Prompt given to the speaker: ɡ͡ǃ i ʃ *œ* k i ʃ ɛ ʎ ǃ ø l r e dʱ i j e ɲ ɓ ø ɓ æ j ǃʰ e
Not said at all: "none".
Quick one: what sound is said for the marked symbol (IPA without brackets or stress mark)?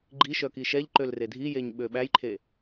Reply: œ